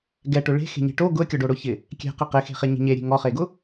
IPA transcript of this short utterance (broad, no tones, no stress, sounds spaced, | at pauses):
ɡ ɛ ʈ ʊ ɭ e̤ x e̤ ɲ e̤ ʈ o ɡ ʊ ə̯ kʲ ɔ ɖ o ɽ ʊ ç ɪ | kʲ ɛ̤ q i q ɪ x e̤ χ e ɲ e̤ ɲ e ɾʲ e̤ ŋ ɔ χ e ɡ ʊ